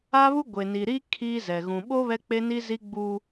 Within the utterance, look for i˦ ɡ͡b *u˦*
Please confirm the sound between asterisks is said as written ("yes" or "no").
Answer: yes